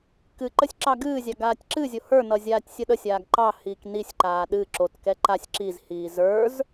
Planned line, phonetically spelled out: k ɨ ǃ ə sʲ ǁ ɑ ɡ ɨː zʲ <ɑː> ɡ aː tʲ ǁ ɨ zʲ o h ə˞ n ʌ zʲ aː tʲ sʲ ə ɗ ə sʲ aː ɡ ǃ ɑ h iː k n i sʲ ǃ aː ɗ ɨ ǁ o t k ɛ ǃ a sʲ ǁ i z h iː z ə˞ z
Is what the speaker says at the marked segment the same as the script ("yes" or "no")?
no